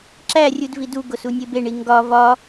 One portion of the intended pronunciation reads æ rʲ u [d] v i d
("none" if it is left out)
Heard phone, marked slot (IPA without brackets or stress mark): d